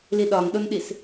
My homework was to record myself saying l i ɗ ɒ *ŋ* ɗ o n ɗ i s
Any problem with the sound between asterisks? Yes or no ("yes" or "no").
no